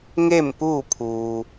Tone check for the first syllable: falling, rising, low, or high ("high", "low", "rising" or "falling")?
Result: falling